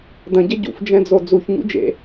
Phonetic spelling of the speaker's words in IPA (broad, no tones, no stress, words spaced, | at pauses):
dɐ̃ɟɐ ɟṵfd͡ʒɛ̃d͡zo d͡zuçɲṵ d͡ʒḛ